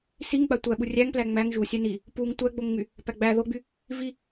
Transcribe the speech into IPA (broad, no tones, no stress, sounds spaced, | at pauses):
s i ŋ ɡ͡b a tʷ æ ɓ u rʲ æ ŋ p l æ ŋ͡m æ ŋ ʒ u sʲ æ n i | p u ŋ tʷ æ ɡ͡b o ŋ ŋ͡m y | p æ ɡ͡b æ ð o ɡ͡b y | v i